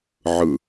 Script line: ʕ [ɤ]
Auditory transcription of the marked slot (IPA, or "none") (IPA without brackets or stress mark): ɯ